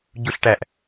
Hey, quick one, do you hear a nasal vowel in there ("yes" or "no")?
no